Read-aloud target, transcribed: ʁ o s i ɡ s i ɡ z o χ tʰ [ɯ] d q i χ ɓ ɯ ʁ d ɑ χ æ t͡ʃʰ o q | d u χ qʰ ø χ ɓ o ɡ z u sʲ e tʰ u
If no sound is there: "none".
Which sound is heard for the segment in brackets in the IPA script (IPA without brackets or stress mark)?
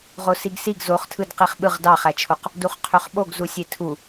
ɯ